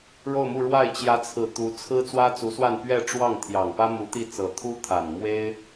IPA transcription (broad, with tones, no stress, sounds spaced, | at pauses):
ɻ o˥˧ ʊ̯ m u˥˧ ɻ w a˥˩ ɪ̯ t͡ɕ j ä˧˥ t͡sʰ ɹ̩˨˩ t̪ u˧˥ t͡sʰ ɹ̩˥ t͡s w ä˥ t͡s u˧˥ s w a˥˧ n p ɥ ɛ˥˧ ʈ͡ʂ w ɑ˥˩ ŋ t̪ʰ j ɑ˨˩ ŋ p ä˥ m u˧˥ t̪ i˥˩ t͡s ɤ˨˩ t̪ʰ u˥ t̪ʰ a˨˩ n m w e˥ ɪ̯